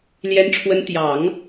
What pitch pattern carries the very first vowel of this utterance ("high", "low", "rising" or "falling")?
rising